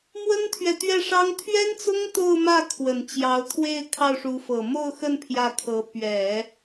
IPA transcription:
m w ə˥ n t̪ʰ ɥ ɛ˨ t̪ ɥ ɛ˥˩ ʂ ɑ˥ ŋ t̪ʰ ɥ ɛ˥ n t͡s ʊ˥ ŋ t̪ o˥˧ ʊ̯ m ä˥˩ kʰ w ə˨˩ n t͡ɕ j ɑ˧˥ ʊ̯ t̪ʰ w e˥˧ ɪ̯ kʰ ɑ˥˩ ʊ̯ ʂ u˧˥ f ɤ˨˩ m o˥˧ ʊ̯ x ə˥˧ n pʰ j ä˥˩ kʰ ɤ˧˥ p ɥ ɛ˨˩˦

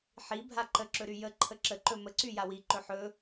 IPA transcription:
ħ i bʱ a ǃ ə ǁ ɵ ɾ y j ə ǃʰ ə ǁ ə ǃ ɵ m ə ǀ y j a w i ǃ ɵ ħ ɵ

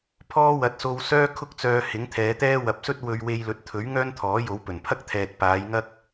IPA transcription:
pʰ ɔː˥ w ɐ˨˥ t̚ s o˧ w s œː˥ kʰ ʊ˥ k̚ t͡s œː˧ h ɪ˨˥ ŋ t̪ʰ ɛː˨˧ t̪ ɛː˥ w ɐ˨ p̚ s ɵ˥ t̚ w ɵ˧ ɥ w e˧ j l ɵ˨˥ t̚ t̪ʰ ɵ˨˥ ɥ ŋ œː˥ n t̪ʰ ɔː˨˥ j o˨˧ w p ɵ˨˩ n pʰ ɐ˥ k̚ t̪ʰ ɛː˨ t̚ p aː˨˧ j ŋ ɐ˥ k̚

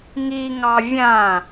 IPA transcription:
ŋ i ŋ ɑ vʲ ã

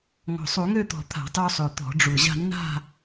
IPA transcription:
ŋ ɔ̤˨˩ sˤ u˧˩˧ ŋ ø˥˧ t̪ ɔ̤˨˩ t̪ʰ a̤˧˩˧ tˤ u˧ sˤ ø˨˩ t̪ ɔ̤˧˩˧ ɖ͡ʐ u˨˩ ʑ a̤˥˧ nː a̤˥˧

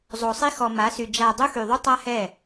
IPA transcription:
zˤ o˨ sˤ i˦ x ɔ˨ m a˨˦ s y˨ d͡ʒ a˨ dˤ u˦ x y˨ ðˤ u˦ tˤ a˦ h ɛ˦˨

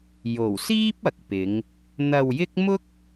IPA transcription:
j o˨˩ w s iː˥ p̚ ɐ˨ k̚ p ɪ˨˧ ŋ | n̪ ɐ˧ w j ɪ˥ k̚ m ʊ˥ k̚

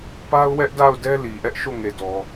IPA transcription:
p a˦ ʊ̯ w ɛ˦ ʔ d a˦˨ ʊ̯ d ɛ˦ l i˨ ʔ ɛ˦ ʔ ʃ o˦˨ ŋ e˨ d ɔ˨

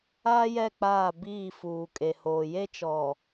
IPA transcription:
aː˦ j ɛ˦˨ k͡p aː˦˨ b iː˦˨ f uː˨ kʼ e˨ h oː˨ j e˦ t͡ʃ ɔ˨

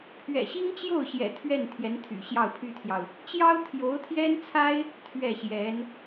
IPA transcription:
pʰ ɥ ɛ̰˨˩ ɕ i˥ ŋ t͡ɕ j o˥˩ ʊ̯ ɕ j ɛ̰˨˩ t̪ʰ ɥ ɛ˥˩ n t̪ʰ j ɛ˧˥ n t̪ʰ y̰˨˩ ɕ j ɑ˥˩ ʊ̯ pʰ y˥ t̪ʰ j ɑ˨ ʊ̯ | t͡ɕ j ɑ˥ ʊ̯ t̪ʰ j o˧˥ ʊ̯ t̪ʰ j ɛ˥ n t͡sʰ a˥ ɪ̯ | t̪ʰ ɥ ɛ˥˩ ɕ j ɛ˧˥ n

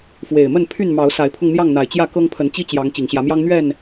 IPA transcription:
f w e˨˩ ɪ̯ m ə˥˨ n pʰ y˥˨ n m ɑ˨˦ ʊ̯ s a˨˦ ɪ̯ pʰ ʊ˧ ŋ n̪ j ɑ˥˨ ŋ n̪ a˨˩ ɪ̯ t͡ɕ j ä˥˨ k ɤ˦ ŋ pʰ ə˨˦ n t͡ɕ i˦ t͡ɕ j ɑ˨˦ ŋ t͡ɕ i˨˩ ŋ ɕ j ä˨˦ m j ɑ˦ ŋ n̪ ɥ ɛ˥˨ n

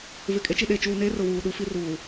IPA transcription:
v ɪ˨ kʼ e˦ t͡ʃ i˨ ɗ e˨ t͡ʃ uː˨ n eː˦ r ʊ˨ w uː˨ ɗ u˦ f i˦ r uː˨

